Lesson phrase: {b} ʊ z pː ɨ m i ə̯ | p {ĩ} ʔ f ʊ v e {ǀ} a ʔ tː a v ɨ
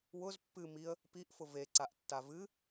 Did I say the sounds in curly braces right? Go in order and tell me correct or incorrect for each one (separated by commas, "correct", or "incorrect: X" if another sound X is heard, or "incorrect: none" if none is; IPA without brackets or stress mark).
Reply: incorrect: w, incorrect: i, correct